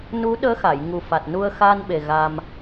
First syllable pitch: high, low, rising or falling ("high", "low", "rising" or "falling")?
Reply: rising